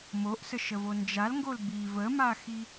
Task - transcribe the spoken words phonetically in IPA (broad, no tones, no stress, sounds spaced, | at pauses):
m o ʔ s ə ʃ ə v o n d͡ʒ a l ŋ ɡ o l b i v ə m a x i